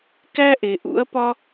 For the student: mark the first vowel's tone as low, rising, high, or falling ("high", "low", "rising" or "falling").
high